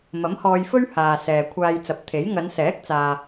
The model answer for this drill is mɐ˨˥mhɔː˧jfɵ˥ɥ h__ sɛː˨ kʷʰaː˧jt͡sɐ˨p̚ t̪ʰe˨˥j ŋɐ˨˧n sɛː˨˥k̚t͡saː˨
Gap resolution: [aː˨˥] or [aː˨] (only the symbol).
aː˨